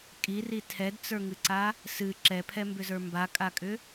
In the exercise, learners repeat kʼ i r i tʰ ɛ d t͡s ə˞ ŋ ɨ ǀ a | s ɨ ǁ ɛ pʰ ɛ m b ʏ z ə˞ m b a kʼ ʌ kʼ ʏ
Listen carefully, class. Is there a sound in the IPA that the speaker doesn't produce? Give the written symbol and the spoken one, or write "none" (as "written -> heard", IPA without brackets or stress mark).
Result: ʌ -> a